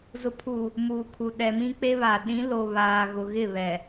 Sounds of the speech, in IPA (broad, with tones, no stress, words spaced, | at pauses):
zʊ˨pʰu˨ | muː˨kʰu˨ ɗɛ˨mĩ˦k͡pe˦βa˨ ɗĩ˨˦ lo˨ βaː˨ɣʊ˨ɣɪ˦˨ βɛ˨